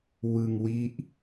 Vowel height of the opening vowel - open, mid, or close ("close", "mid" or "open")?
close